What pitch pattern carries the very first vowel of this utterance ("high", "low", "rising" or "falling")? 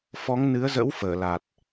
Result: rising